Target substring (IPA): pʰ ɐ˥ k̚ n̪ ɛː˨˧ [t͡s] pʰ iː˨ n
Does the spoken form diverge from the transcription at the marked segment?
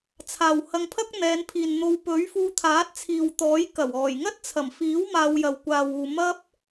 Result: yes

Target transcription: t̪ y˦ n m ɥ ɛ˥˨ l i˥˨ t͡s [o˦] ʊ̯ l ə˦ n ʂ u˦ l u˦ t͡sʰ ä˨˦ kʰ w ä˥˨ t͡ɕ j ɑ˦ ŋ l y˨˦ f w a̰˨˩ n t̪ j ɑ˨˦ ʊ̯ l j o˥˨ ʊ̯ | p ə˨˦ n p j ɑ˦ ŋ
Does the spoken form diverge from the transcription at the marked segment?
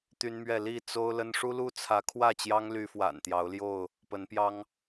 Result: no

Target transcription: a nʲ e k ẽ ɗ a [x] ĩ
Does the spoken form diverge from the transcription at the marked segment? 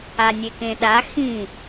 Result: no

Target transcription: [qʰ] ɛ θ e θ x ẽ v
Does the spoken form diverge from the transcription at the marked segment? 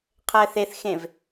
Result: no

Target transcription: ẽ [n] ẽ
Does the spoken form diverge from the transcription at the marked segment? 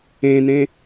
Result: no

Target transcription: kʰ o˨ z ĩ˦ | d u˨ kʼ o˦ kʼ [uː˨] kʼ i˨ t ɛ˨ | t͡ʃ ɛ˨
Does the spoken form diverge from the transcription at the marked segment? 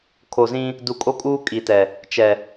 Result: yes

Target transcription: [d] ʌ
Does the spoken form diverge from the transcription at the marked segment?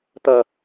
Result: yes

